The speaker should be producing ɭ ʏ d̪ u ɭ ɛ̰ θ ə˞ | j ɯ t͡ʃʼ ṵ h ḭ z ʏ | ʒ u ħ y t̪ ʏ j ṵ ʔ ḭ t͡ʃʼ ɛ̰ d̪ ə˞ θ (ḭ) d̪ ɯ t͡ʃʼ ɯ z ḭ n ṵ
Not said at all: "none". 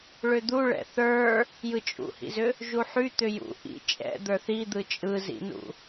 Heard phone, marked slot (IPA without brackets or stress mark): i